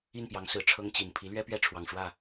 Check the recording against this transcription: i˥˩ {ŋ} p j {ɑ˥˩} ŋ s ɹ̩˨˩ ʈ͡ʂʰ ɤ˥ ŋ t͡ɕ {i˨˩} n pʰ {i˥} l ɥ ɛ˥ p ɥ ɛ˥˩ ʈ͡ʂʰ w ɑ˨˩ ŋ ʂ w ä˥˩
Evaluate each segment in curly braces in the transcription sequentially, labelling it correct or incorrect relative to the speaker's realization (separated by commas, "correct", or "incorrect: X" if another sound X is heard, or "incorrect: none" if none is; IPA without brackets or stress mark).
incorrect: n, incorrect: ɑ˧˥, correct, incorrect: i˧˥